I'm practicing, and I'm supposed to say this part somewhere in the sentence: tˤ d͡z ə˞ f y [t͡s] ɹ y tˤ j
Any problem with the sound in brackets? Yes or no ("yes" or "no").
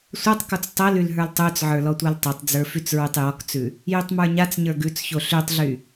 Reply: no